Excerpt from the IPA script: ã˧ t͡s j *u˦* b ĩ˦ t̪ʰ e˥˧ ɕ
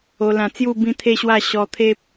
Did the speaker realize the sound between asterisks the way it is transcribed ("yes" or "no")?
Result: no